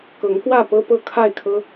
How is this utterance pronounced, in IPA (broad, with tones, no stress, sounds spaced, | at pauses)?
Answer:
k ɤ˨˦ ŋ k w ä˥˨ p ɤ˦ p ɤ˦ kʰ a˥˨ ɪ̯ kʰ ɤ˦